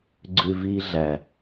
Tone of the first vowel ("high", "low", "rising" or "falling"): low